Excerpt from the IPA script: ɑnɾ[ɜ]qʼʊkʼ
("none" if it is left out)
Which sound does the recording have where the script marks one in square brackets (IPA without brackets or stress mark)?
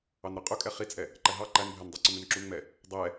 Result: ɜ